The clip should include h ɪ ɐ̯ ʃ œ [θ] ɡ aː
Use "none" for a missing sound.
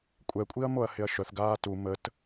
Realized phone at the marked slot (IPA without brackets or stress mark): θ